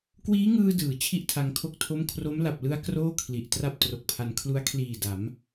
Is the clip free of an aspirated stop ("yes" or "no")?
no